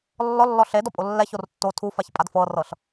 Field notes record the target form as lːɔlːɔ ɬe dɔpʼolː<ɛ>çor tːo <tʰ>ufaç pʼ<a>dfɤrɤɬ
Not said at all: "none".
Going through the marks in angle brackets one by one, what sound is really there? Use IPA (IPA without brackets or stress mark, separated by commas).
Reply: ɛ, tʰ, a